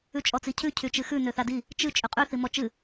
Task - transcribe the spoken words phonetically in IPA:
ʉ t͡ʃʼ ɔ t͡s i cʰ ʉ cʰ y t͡ʃ ɨ x ʉ n ø θ a d i | t͡ʃ ɨ t͡ʃʼ ʉ qʼ ʉ θ i m ɔ t͡ʃ ɨ

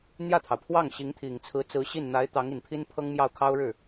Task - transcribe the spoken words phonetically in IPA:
n̪ j ä˥˩ t̪ʰ ɑ˩ ʊ̯ pʰ w ɑ˥˩ ŋ ɕ i˧˥ ŋ t̪ʰ i˨˩ ŋ t͡sʰ ɹ̩˧˥ t͡s ɹ̩˧˥ ɕ i˥˩ n n̪ a˧˥ ɪ̯ t̪ ɑ˧˥ ŋ i˨˩ n pʰ i˥ n pʰ ɤ˥ ŋ m j ɑ˥˩ ʊ̯ kʰ ɑ˥ ʊ̯ ɻ ɻ̩˥˩

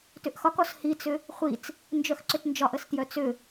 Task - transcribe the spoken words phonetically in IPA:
t ʏ ʔ x ɒ k ɔ s h i t͡s ʏ | χʷ i t͡s | n d͡ʒ œ x ǀ ʏ t n d͡ʒ ɒ ʔ ə s t j œ t͡s ʏ

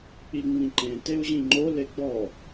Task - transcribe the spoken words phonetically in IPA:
k͡p i ŋ͡m ĩ ǃ ẽ t e u̯ ʑ ĩ ŋ͡ǃ o l e ɡ͡b ɔ

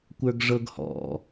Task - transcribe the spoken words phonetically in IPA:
kʷ ə˞ ɡ ʐ ɤ ɡ h ɔ̰

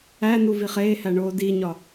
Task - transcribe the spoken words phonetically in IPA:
æ n u v i χ eː h æ ɳ oː d i ɲ ɒ

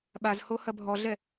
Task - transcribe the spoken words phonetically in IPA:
ɓ a z h o h ɐ bʱ ɔ ɮ ɛ

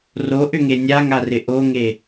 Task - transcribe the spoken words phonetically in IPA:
r o ʔ ʏ ŋ e nʲ a ŋ a r ɪ ʔ o ŋ e

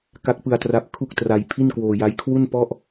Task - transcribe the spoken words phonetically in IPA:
k a˦˥ k̚ p ɯ˧ a̯ t r a˦˥ p̚ kʰ u˥˩ k̚ t r a˧ j pʰ i˥˩ n k w oː˧ j a˦˥ j kʰ w u˥˩ n p ɔ˥˩ ʔ

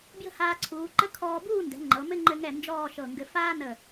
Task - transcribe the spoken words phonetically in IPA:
b j ə̤˥ h aː˧ ǀʰ uː˩˧ ǃ ə˥ kʰ ɔː˧ b uː˥˧ n d ɛ̤˩˧ ŋ͡ǃ ɤ˩˧ m ɘ˥ ŋ͡ǃ ɘ˧ ŋ ɛ˧˩ n d͡ʒ ɔː˥˧ ʃ ɤ˧˩ ŋ ɡ ɘ˧ f aː˥ n ə˧˩

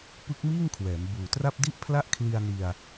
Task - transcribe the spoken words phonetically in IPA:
p ɯ˦˥ k̚ m iː˥˩ ŋ kʰ w ɛː˩˦ m b uː˨˩ t r a˥˩ p̚ d i˥˩ ʔ pʰ l a˥˩ ʔ kʰ l i˧ a̯ n i˧ a̯

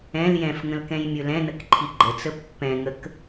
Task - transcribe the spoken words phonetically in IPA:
ɛ̃ l j ɛ̃ f ŋ ə̃ l k ɛ̃ j mʲ ɵ l ɛ̃ n ə k ǃʰ i ɡ͡ǃ ə t͡s ə pː ɛ̃ ŋ ə k

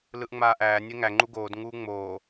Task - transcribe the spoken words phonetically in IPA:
l ɯ ʔ ŋ͡m aː ʔ æː nʲ ɛ ŋ æ ŋ͡ǃ u ɡ oː d ŋ uː ŋ͡m oː

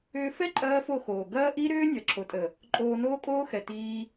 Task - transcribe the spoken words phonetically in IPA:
ʏː˧ f ɛ˦ ǃʼ ɐː˦ f o˦˨ x oː˨ ɡ ɐː˦ ʔ i˦ ɾ ʏː˦ nʲ ɐ˨ ǁʰ o˨ tʼ ə˨ | ǃʼ oː˧ n oː˦ kʼ oː˦ x ɛ˨ t iː˦

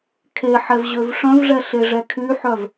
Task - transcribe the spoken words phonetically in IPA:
kʰ e ħ ɛ v ʑ ø v ʂ œ̃ v ʐ ɛ ɬ e ʐ ɛ kʰ y ħ œ v

